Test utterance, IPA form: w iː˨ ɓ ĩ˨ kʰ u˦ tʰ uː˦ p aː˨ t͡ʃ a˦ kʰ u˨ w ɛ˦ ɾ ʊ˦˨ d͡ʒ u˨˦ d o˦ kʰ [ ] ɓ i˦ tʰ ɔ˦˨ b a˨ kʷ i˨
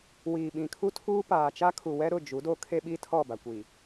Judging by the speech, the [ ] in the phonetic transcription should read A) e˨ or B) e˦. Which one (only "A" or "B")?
B